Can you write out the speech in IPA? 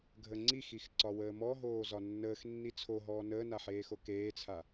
ɡʱəŋ͡ǀixix ǀɒwəːmɔɦoː zɒnːəːx nːit͡sʰoɦɔː nəːnaħeːxo keːt͡sʰa

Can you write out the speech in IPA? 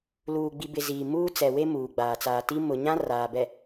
luː˨ɡ͡bi˨bɪ˨ ziː˨ muː˦t͡sɛ˨we˦ muː˨ɡ͡baː˨t͡saː˨ti˦ mʊ˨ɲã˦ raː˨bɛ˨

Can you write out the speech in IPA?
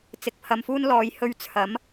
t͡sɪ˧k̚pʰɐ˧mfuː˥n lɔː˨˧jhɵ˧ɥ t͡sʰɐ˨˥m

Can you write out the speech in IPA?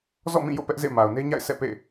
zɔ̰˦˨mĩ˦˨ jo̰˦˨pɛ˦ʔzḛ˦˨ ma˨ʊ̯ne˦ɲa̰˦˨ɪ̯ sʰɛ̰˦˨pḛ˦˨

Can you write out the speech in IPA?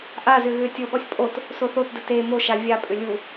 ʔazʏ ɣʏːtʲoɠɔsʲ pʼot | soθotdə te moʃa vʲapʼʏ lʲu

